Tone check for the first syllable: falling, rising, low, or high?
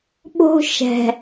high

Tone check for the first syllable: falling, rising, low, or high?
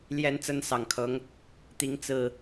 rising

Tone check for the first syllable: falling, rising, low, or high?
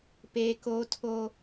high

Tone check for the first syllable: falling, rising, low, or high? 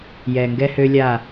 low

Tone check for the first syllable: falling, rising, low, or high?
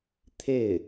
falling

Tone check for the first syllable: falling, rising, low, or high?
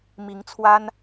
rising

